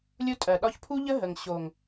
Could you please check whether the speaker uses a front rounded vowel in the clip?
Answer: no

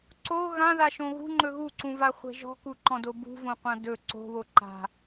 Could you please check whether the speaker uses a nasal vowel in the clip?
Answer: yes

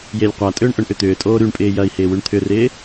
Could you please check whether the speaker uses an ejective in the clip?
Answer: yes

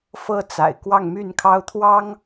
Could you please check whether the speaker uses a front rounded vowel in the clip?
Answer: yes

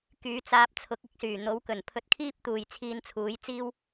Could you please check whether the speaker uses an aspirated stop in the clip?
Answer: yes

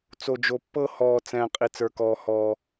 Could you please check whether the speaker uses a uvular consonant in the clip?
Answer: yes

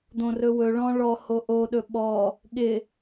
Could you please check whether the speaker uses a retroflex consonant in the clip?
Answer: yes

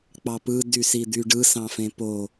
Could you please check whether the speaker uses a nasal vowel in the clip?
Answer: yes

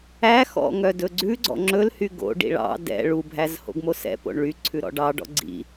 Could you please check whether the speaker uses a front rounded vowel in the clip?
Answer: yes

